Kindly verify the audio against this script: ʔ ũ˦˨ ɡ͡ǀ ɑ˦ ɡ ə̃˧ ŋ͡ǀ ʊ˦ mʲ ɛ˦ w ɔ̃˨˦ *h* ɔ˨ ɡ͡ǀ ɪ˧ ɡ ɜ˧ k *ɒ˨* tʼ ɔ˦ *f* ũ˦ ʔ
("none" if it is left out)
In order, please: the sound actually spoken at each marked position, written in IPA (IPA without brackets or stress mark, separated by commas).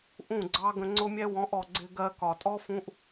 ʔ, ɒ˨, f